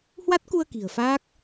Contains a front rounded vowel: no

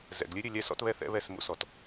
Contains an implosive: no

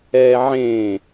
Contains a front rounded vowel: no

